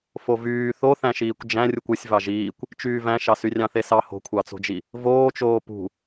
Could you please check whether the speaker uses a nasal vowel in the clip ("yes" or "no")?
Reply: yes